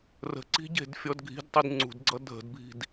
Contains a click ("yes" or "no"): yes